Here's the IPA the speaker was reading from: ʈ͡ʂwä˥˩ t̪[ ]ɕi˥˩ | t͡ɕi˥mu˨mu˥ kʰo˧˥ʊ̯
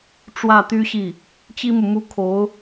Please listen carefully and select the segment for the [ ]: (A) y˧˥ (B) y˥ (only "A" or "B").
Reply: B